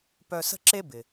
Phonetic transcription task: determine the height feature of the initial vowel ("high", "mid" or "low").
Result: mid